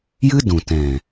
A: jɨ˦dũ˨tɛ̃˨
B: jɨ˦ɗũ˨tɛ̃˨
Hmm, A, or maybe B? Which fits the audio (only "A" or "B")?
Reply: A